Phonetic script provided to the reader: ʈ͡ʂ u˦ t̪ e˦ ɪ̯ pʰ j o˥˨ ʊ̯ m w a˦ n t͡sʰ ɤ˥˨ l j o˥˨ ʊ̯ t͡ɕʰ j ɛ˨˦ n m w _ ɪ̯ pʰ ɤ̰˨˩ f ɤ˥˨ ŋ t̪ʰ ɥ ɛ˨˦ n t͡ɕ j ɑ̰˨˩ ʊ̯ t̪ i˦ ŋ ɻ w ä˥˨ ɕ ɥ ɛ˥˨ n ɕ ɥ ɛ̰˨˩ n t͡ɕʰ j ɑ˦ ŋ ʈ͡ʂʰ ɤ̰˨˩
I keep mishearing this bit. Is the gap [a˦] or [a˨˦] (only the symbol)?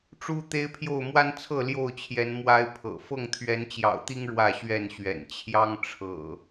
a˦